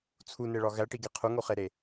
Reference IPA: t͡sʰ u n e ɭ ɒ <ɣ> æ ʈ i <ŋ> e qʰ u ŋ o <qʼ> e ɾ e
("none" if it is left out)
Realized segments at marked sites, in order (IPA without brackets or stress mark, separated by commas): ɣ, ɡ, χ